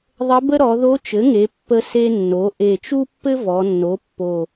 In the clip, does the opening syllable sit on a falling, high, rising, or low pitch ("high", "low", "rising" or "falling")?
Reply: rising